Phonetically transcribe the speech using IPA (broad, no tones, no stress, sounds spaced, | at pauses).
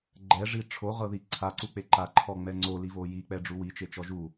ɡ͡ǃ ɛ ʐ i ʈ͡ʂʰ o ʁ ɤ ð i ǀʰ a ǀ u k͡p e ǃ a ǃʰ ɔ ŋ͡m ɛ ŋ͡ǀ o l i v o j i k͡p ɛ ɖ͡ʐ u w i t͡ʃ e t͡ʃ ɔ ʒ u